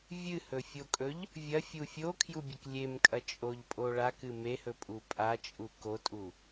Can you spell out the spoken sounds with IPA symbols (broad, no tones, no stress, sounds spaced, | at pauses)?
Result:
vʲ ɨ h ɵ fʲ o kʼ ɵ ʎ | vʲ ɐ fʲ u fʲ o kʰ j u bʲ ɨ k lʲ e m kʼ ɐ t͡ʃʼ o ʎ pʼ o ɭ a k ɨ m e h ɵ pʼ u pʼ a t͡ʃʼ u k o tʼ u